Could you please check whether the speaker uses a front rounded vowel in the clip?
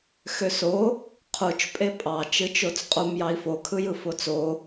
yes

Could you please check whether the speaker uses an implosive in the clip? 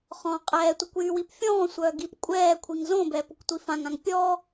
no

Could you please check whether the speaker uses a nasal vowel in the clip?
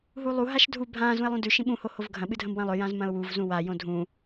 yes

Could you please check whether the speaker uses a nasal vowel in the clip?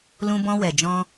yes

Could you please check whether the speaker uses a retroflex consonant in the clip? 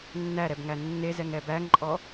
no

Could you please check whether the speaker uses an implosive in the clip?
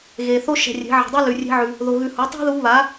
no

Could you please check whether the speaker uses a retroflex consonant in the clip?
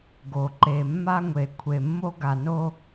no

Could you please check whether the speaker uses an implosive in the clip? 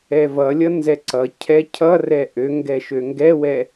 no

